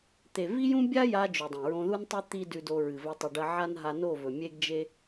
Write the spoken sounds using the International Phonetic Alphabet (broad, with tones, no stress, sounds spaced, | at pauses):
t̪ e˨ v i˦ j ũ˦ bʲ a˦ j a˧ d͡ʒ ʉ˨ dˤ ẽ˨ ɹ õ˧ ð u˦ n tˤ ɨ˦ t̪ i˦ d ʉ˧ d o˧ ɹ ɨ˨ v ɵ˧ tˤ ʉ˨ ɖ ɐ˧ ʕ a˦ n ɦ a˧ n o˦˨ v ɵ˨ mʲ e˦ ɡ d͡ʒ e˦